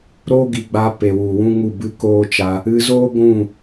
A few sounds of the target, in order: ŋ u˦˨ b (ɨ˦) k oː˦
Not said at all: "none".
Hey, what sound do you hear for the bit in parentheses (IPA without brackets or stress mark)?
ɨ˦